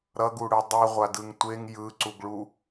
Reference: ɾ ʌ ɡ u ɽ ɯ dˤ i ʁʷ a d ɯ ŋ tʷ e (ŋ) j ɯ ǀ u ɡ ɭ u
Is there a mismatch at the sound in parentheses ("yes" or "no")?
no